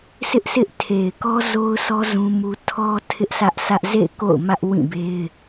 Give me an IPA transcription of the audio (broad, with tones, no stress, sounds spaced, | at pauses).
sʰ ɪ˦ ʔ sʰ ɪ˦ ʔ tʰ e˨ ɪ̯ k ɔ˦ z o˦ ʊ̯ sʰ ɔ˦ z ũ˦ m u˦ tʰ ɔ˦ tʰ ɪ˦ ʔ s ä˦ ʔ sʰ ä˦ ʔ z ḛ˦˨ ɪ̯ k o̰˦˨ ʊ̯ m ä˦ ʔ w ĩ˦˨ b e˦ ɪ̯